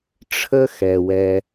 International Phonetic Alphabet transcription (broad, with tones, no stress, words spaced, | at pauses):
ʈ͡ʂʰə˦ xɛ˨wɛ˧